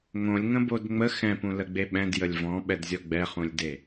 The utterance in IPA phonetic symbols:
ŋõlʲŋə̃bod ŋ͡mə xɛ̃pũləɡ͡be ɓɛ̃djəlʲ vɔ̃ɓɛdzʲɔ ɡ͡bɛχũlʲde

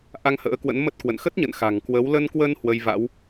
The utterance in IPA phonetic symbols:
ʔa˧ŋhə̰ː˧˥kwə̰˧˥n mə˦˥t̚kwə̰˧˨n xə˦˥t̚ɲə̰˧˨n xa̤˨˩ŋkwə˨˦w lə˧nkwə˧n hwə˧jva̰˧˥w

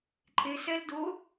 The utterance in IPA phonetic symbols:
ǃʼe sɛl do

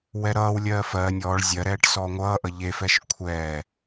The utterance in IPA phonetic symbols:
wɛɾʌːwlʲɜː fɜː nʲɔːɭ zʲɜɾɛːʈ sɔːŋʷʌːʔʌ ʎefɛʃ kʷʰɛː

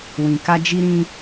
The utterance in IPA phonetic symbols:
wĩ˨ ka˧d͡ʒi˧ɾĩ˧

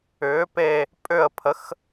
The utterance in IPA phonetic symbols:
ʏː˨˥pe˦˨ | pʼʏ˦˨ə̯pʰə˨˥x

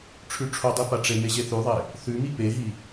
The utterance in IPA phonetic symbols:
ʈ͡ʂʰʉʈ͡ʂʰodˤi paʈ͡ʂeme ʑeθʉðˤe | θʉmi peɦi

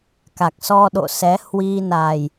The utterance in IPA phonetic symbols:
ka˨˩k̚sɔ˧ɗo̰˧˨ sɛ˨˦hwi˧na˨˩j

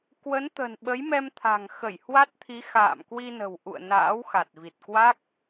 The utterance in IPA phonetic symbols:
kwə˨˦nt̪ə̤˨˩n ɓə˨˦jmɛ˧mt̪ʰa̤˨˩ŋxə˧˩j hwa˦˥t̚t̪ʰi˨˦ xa̰ː˧˨mkwi˧nə̤˨˩w ʔṵ˧˨ə̯ na̰ː˧˥wxa˨˩t̚vi˨˩t̚kwa˦˥k̚

